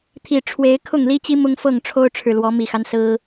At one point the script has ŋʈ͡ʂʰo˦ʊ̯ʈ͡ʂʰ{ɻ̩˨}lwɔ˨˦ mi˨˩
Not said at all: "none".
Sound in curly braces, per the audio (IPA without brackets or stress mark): ɻ̩˨